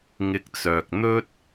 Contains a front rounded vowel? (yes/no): yes